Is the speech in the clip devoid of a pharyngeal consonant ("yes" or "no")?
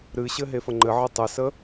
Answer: no